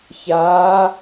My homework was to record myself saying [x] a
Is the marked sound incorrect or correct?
incorrect